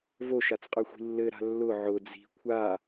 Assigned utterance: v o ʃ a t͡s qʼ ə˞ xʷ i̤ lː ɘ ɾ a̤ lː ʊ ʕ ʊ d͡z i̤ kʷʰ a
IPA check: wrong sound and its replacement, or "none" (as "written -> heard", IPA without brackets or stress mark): none